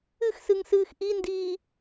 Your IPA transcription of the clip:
ɨ x s ɨ ŋ s ɨː x ʔ i n d iː

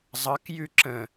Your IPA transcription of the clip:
zˤ ʌ k j ʉ ǁ ə̃

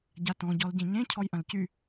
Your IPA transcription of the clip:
ɟ a t ɔ̃ ɟ ɔ l ɟ ẽ ɲ ẽ cʰ ɔ j ʔ ɐ̃ l c y

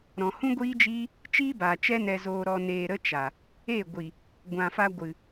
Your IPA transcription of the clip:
ɾ ɔ̃˨ h ũ˦ ɡʷ iː˦ d͡ʒ iː˦ | t͡ʃ iː˦ b aː˨ t͡ʃ ɛ˦ n ɛ˧ z oː˧ ɾ ɔ˧ n eː˧ ɾ ə˦ t͡ʃ a˨ | e˦˨ ɡʷ i˨ | ɡʷ ã˨ f a˧ ɡʷ ɨ˨

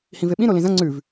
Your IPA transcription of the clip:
h ĩ v e ɓ ĩ ɾ o l ĩ z ɐ̃ ŋ͡ǀ ʉ v

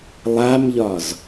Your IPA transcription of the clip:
lˠ a m ʎ ɒ z

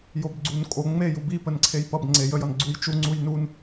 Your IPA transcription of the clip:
j o b ɡ͡ǀ u n kʼ o ŋ͡m e j u b i p ə n ǀʰ e j p ʌ b ŋ͡ǀ e j ə j ʌ n ɡ͡ǀ u j t͡ʃ u ŋ͡ǀ u j n u n

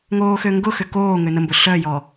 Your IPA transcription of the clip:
ŋ oː x ø ŋ ɡ ʊ x ʏ k oː ŋ ø n ə m b ʊ ɬ œ j ɔ

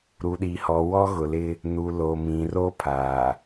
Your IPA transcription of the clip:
ɾ u˨ ɗ i˨ h ɔ˨ w ɔ˦ ɣ ʊ˨ l ɪ˦ | n u˨ l o˨ m ĩ˨ r o˦ pʰ aː˨

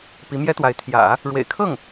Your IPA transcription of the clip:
p i˧˥ m j ɛ˥ t̪ w a˧˥ ɪ̯ t̪ʰ j ä̰˨˩˦ | ɻ w ḛ˨˩ ɪ̯ kʰ ɤ˥˩ ŋ

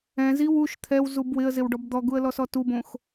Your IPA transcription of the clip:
ɛ̃ z i w u ʃ t̪ʰ ɛ w z u b w ɪ ə̯ z ɪ w ɖ ɔ b d̪ ɔ ɡ u ə̯ l ɔ s ɔ t u b õ x

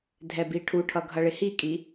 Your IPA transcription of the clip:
dʱ ɛ b i ʈʰ u ʈʰ ʌ ɡʱ ʌ ɭ ɪ h i kʼ i

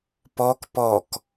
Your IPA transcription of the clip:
p ɔ k p ɔ k

